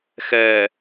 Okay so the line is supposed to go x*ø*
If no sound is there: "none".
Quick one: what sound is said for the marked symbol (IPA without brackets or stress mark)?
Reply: ɛ